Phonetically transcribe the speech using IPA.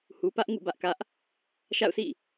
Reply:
h u˨ p ä˦ ʔ ŋ ṵ˦˨ b ä˦ ʔ k ä˦ ʔ | ʃ a̰˦˨ ʊ̯ s ḭ˦˨

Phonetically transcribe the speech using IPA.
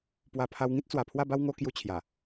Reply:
p w a˧ pʰ a˧ w ŋ ĩ˦ t̚ t͡s w a˨˩ pʰ w a˥˧ b a˦ w ŋ o˧ k j u˧ t͡ɕʰ j a˨˩

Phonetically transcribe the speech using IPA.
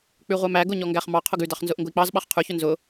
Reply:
k͡p ʉ ʁʷ æ m æ ɡ ʊ ɲ ɔ ŋ ɡ æ χ m ɑ qʰ ʊ ɡ ʉ d ɑ χ n z ʊ ʔ ŋ ɡ ʊ i̯ k͡p ɑ z ɓ ɑ χ qʰ ʉ ç ʊ n z ʊ

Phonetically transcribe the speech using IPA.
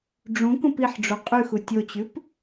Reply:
ɖ͡ʐ ũ k ũ p i ħ ɖ͡ʐ o qʼ ʉ x u tʲ o t͡ɕ ʉ p

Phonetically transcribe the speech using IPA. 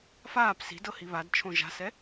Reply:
f aː p s i̤ d ɤ h i β a d t͡ʃʰ õ ʒ a̤ s ɛ

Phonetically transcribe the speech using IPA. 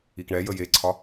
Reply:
i k ɳ ɛ j ə j e ǀʰ ɒ

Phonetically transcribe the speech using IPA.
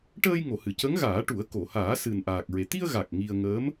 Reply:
ʈ əː˧ j ŋ o˨˩˨ h ɨ˨˩˨ c ə˧˥ ŋ ɣ aː˨˩˦ ʈ u˨˩˦ ə̯ k o˨˩˨ h aː˨˩˦ s ɨ˨˩ n ʔ aː˨˩ k̚ ɹ e˨˩ t̪ i˧ ə̯ ɣ a˨˩ k̚ ŋ i˧ ə̯ ŋ əː˧˥ m

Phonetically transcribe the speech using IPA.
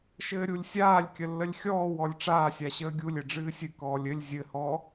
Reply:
ʃ ɘː ɾʲ u lʲ sʲ aː lʲ kʲ ə lː ə lʲ xʲ ɔː w ɔ lʲ ʈ͡ʂ aː sʲ a ɕ əː ɡʲ u lʲ ɘ ɖ͡ʐ ɨː sʲ ɨ k ɔː lʲ ɘ lʲ zʲ ɘ h ɔ

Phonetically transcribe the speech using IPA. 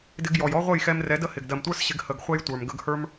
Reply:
d ɪ˧ ɡ j ɔ˨ j ɔ˦ ʁʷ ə˦˨ j x ɛ˧ m r ɛ˨˦ d ə˦ h ɪ˨ ɡ d ɜ˨ m tʷ ə˞˦ s ɕ ɪ˧ ɡ h ə˨ ɡ χʷ ɛ˦ j tʷ ə˞˨ m ɡ ə˧ ɡ h ə˞˦ m

